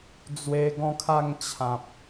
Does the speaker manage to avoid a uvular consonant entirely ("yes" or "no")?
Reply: yes